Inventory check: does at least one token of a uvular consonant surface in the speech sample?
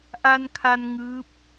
no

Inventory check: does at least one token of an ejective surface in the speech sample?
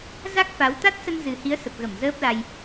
no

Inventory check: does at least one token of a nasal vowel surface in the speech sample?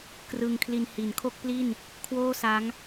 no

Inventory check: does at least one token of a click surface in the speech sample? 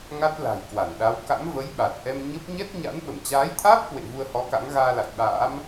no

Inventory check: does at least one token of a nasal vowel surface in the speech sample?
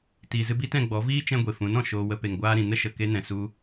yes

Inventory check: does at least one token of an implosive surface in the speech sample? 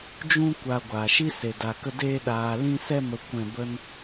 yes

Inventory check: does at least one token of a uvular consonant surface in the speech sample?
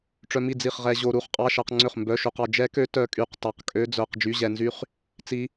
yes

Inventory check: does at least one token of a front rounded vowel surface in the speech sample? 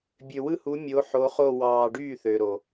yes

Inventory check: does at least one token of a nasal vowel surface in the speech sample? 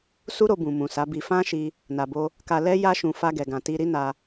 yes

